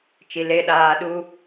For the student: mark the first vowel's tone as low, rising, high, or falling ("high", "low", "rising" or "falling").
low